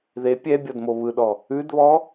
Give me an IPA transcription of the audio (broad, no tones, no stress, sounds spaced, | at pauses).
ð e pʲ ɛ bʲ ɔ d m o β ɯ ɗ ɔ | ʉ d β ɔ